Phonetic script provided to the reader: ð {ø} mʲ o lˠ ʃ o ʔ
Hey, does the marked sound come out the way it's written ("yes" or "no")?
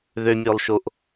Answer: yes